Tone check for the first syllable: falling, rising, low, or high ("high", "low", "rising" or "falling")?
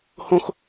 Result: high